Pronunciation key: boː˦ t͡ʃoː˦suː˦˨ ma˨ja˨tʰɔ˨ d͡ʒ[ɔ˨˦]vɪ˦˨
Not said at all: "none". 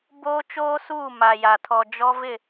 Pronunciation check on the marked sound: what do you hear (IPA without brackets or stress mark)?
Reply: ɔ˦